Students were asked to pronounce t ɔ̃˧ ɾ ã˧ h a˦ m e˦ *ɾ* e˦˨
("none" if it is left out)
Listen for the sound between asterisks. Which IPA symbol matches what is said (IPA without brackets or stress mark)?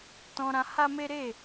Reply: ɾ